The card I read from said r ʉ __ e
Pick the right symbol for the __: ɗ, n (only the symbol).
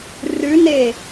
n